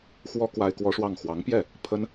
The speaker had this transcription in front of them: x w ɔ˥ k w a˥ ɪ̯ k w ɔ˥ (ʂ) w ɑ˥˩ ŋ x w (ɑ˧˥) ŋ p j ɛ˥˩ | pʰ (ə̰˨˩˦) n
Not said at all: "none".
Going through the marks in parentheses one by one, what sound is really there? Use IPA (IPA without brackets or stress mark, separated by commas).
ʂ, ɑ˧˥, ə˥